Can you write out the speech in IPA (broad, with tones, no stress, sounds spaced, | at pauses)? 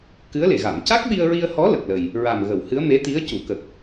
k ɨ˧˥ ə̯ l e˨˩˨ ɣ a˨˩˨ m c a˦˥ k̚ ɓ i˧ ə̯ ɹ i˧ ə̯ h ɔ˧˥ l ə˨˩ k̚ l ə˨˩ j | ɹ a˨˩ m ɣ ə˨˩˨ w h ɨ˧˥ ə̯ m e˧˥ t̪ i˧˥ ə̯ c u˨˩˨ k ə˨˩ k̚